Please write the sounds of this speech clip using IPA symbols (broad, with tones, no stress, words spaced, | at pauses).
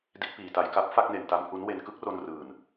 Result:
di˦˥t̚piː˨˩ta˧j ka˦˥p̚fa˥˩k̚ne˨˩n ta˦˥mhu˦˥n we˧nkɯ˦˥k̚ro˧n rɯː˨˩n